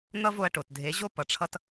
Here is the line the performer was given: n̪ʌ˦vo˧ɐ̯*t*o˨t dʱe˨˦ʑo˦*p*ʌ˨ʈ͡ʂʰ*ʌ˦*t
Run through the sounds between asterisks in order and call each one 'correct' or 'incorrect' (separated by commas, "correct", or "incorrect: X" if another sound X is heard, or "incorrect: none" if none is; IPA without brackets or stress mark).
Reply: incorrect: ʈ, correct, correct